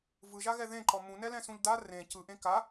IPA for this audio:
v ɯ ʒ a ɣ ɛ ð ẽ ǃ ɔ m ũ n ɛ l ɛ̃ s ũ ʎ d a r ẽ c ɯ ʔ ẽ k a

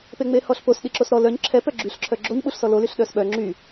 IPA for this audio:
p e ŋ͡m e h ɔ ɬ p o s ɗ i ǁ o s ɾ ɔ l œ ɲ ǁʰ ɛ p œ ɡ͡ǁ y ɬ ǁʰ œ ɡ͡ǁ o ɲ ɓ u ɬ s ɔ l o l y ɬ ɗ œ s ɓ œ ŋ͡ǁ y

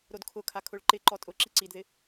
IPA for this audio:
ɾ o d kʰ ʊ kʰ a kʰ ʊ ɭ ǃ ɪ ǃ ɔ tʼ ʊ ǁ i ǀ i d ð ɪ

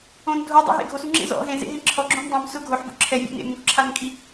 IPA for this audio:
õ n dʱ o dˤ o̰ ɦ ḛ ɡʱ o s u ŋ͡ǁ ḛ z ɔ̰ ɦ ẽ z ḛ ɦ ẽ ǁʰ ɔ ɡ͡ǁ õ m dˤ õ m s ʊ ɡʱ o ħ b o̰ ǁʰ ɛ vʲ o̰ n ḛ m ũ k ǁʰ a n kʼ i

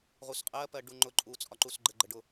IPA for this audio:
ʁ u s qʼ ɜ p ɜ ɖ u ŋ͡ǃ ʊ ǃʼ u t͡sʼ ɒ ǃ u s ɡ͡ǃ ə ɡ͡ǃ ə ɖ ʊ

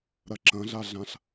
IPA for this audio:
ɾ ɐ ǁ ɐ̃ ɮ a ɮ ã ɬ

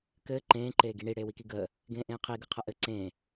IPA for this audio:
k ɘː ǃ ẽː ǃ eː ɡ i ɳ i ɽ eː w i k i ɡ əː | ɡ ẽː ʔ ẽː qʰ i ɡ ɯ qʰ ɐ ʔ ɘ ǀ ẽː

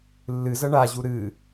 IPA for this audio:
lː ɨ z ɐ ɳ a ʑ u ɾ ɨ

